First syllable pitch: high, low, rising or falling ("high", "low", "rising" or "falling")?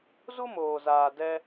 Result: high